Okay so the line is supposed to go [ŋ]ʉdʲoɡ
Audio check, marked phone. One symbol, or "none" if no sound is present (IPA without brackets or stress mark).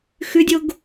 x